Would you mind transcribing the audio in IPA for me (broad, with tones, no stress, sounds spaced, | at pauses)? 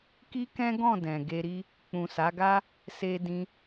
k i˦ k ɛ̃˦ ɡ ɔ̃˦˨ d ɛ̃˨ ɡ e˧ ɾ i˦ | k͡p ũ˨ s a˨˦ ɡ a˦ | s e˧ d ĩ˧